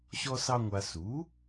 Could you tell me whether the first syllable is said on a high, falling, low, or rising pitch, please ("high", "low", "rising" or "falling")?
high